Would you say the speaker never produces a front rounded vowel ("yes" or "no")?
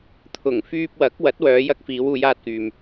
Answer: no